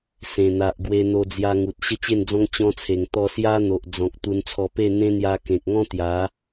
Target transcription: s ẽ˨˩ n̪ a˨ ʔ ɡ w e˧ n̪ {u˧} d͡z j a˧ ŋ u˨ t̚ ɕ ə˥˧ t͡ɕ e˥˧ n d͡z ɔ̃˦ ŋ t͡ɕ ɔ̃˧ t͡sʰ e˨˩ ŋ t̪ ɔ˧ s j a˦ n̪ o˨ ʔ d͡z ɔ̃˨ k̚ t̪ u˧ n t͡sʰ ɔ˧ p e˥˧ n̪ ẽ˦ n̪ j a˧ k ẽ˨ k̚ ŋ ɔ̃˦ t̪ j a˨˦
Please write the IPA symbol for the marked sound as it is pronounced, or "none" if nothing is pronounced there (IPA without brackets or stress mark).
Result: o˧